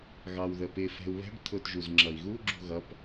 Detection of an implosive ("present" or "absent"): absent